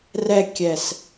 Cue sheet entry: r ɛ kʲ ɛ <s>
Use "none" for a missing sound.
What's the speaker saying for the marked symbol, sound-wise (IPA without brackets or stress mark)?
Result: s